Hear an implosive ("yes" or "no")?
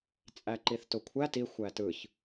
no